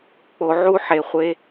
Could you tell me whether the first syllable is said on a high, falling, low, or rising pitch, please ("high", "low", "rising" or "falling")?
high